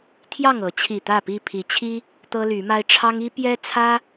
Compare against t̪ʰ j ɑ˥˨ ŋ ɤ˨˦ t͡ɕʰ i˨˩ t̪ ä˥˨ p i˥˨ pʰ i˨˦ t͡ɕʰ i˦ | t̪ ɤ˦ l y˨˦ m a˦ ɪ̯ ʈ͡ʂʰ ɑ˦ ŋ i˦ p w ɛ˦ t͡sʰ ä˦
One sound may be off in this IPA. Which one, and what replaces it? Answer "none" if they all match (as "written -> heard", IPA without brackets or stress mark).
w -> j